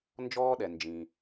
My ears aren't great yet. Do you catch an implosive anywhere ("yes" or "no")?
yes